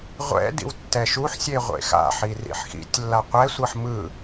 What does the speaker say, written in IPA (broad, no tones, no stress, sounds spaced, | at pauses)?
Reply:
ʁʷ ɛ̰ d ḭ w tː ɛ ʃ u ħ sʲ e ʁʷ ḛ x a̰ ħ i r ḭ ħ x ḭ tʲ lː a qʷ ɛ sʷ ʌ ħ m ɯ